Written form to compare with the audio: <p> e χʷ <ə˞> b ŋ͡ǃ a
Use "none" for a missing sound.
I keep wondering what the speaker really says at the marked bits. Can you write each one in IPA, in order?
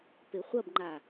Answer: p, ɐ

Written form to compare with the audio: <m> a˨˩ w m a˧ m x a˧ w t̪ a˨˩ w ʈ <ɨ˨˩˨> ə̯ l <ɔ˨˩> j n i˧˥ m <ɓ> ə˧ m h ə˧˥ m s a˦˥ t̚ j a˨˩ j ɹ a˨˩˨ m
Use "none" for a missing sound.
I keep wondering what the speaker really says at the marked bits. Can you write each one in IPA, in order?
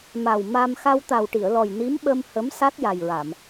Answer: m, i˨˩˨, ɔ˨˩, ɓ

